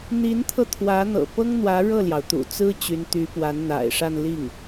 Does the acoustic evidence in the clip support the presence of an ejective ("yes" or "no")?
no